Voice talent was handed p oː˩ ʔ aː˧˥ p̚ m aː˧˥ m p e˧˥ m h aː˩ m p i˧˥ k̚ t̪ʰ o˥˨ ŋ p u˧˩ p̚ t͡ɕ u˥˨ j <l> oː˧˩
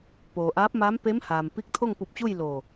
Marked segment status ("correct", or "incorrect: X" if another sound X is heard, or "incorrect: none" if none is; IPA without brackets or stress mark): correct